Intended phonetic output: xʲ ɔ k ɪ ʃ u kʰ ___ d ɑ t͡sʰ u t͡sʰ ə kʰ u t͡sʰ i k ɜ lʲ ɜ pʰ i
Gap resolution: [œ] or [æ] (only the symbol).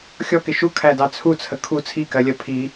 æ